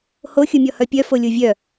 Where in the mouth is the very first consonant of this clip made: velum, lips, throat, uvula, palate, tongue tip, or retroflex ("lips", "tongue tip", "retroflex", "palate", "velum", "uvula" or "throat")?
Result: throat